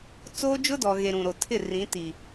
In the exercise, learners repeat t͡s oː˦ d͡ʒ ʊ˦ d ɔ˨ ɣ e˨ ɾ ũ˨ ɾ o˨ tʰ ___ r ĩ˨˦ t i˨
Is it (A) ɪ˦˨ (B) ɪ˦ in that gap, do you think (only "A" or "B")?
A